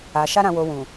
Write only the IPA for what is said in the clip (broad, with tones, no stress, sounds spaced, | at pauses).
a˨ ʃ a˧ ɾ ã˨ w o˨ w ũ˨